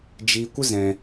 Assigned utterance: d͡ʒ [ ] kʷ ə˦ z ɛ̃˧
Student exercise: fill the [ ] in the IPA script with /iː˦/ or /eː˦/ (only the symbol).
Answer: iː˦